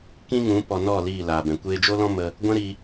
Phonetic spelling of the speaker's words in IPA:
kĩ˧ ŋũ˨˦ pɔ˨ nɔ˦˨ liː˦˨laː˨bɛ̃˨ kʷeː˧d͡ʒo˦lɔ̃˦ mə˧ | ɡʷɛ̃˦ɾi˧

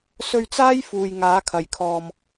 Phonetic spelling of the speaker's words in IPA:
sɵ˧ɥt͡saː˥j fuː˨jŋaː˨˥kʰɐ˨˩jkʰɔː˨m

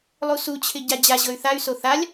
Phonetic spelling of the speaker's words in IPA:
lˠusut͡ɕʰɪ ɟad͡ʑaʑɤy̯ θay̯so θalʲ

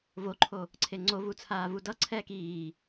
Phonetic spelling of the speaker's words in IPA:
voǃʰo | ǀʰeŋ͡ǀovu t͡sʰaːvudʌǀʰɛːk iː

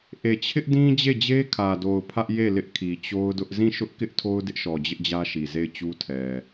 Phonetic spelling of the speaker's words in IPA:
ʔe˨t͡ɕʰɪ˦ʔdĩ˦ d͡ʑe˦˨d͡ʑe˦kʰä˨do˨ʊ̯ pʰä˦ʔ je˦˨ lɪ˦ʔkʰi˨t͡ɕo˦ʊ̯dʊ˦ʔ zĩ˦˨ʃʊ˦ʔkɪ˦ʔ tʰo˦ʊ̯dɪ˦ʔʃɔ˨ d͡ʑɪ˦ʔd͡ʑä˦ʃi˨ ze˦˨ɪ̯t͡ɕu˦tʰɛ˨

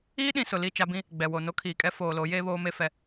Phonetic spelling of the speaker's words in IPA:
iː˦ɗĩ˨ sʊ˨li˦˨ t͡ʃa˦bĩ˦ | ɡ͡bɛ˨wo˨ no˦kʰiː˨kʼɛ˦ foː˨lo˨˦ jeː˦βoː˦me˦ fɛ˦

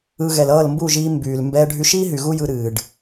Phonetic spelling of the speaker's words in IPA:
ɯ˧ ɣɛ˨lʌː˦˨lmbu˦˨ʒiː˧ mbyː˨l mbɛː˧ɖʱy˧ʃiː˦ɦy˨ ɣu˦jɯ˧ɾɨː˨ɖ

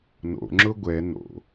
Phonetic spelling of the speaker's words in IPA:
no̰ŋ͡ǁʊ ɡʷɛ no̰

